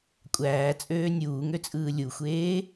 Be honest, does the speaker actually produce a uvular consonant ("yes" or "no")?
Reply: no